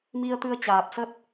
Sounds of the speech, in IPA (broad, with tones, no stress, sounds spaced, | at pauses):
m i˧ ə̯ t̪ ɨ˧ ə̯ t͡ɕ aː˨˩ p̚ s ə˦˥ t̚